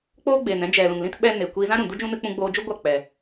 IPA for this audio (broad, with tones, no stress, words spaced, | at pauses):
k͡poː˦ɡ͡beː˨nɛ̃˦ d͡ʒɛ˨lũ˨ŋlĩ˦t ɓɛ˦ ne˨ kʷiː˧zã˦ ɾũ˨du˦d͡ʒũ˦ nɨ˧k͡pũ˧ɡ͡boː˧d͡ʒu˦ ɡʷa˦˨k͡pɛ˨